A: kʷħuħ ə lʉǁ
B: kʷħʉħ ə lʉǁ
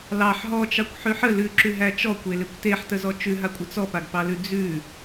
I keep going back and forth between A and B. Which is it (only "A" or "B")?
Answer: B